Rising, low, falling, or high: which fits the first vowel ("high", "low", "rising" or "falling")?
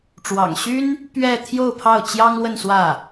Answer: low